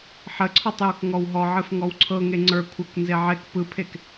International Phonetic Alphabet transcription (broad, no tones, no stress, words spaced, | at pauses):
ħəǀʰɔtˤjok ŋɔwɦɔʕɨf ŋɔwǀʰɤŋe ŋ͡ǀə˞kʷʰɤk nzeʕek pɯpʰek